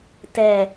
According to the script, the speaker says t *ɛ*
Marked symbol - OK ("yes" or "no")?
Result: yes